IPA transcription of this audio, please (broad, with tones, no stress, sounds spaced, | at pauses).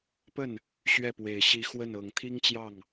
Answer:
p ə˥˩ n | ɕ ɥ ɛ˥˩ p w e˨˩ ɪ̯ ɕ i˧˥ x w ə˥˩ n ɤ˨˩ ŋ t̪ʰ i˥ ŋ t͡ɕ j ɑ˥˩ ŋ